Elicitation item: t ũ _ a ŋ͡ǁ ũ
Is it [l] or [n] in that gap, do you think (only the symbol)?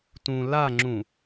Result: l